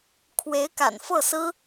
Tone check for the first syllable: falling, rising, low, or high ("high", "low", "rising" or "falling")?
rising